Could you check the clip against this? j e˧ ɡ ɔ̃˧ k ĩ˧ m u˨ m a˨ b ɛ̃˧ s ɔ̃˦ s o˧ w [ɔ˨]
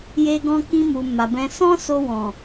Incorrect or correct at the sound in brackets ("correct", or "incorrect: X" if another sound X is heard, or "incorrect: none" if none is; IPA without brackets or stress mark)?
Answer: incorrect: ɔ̃˨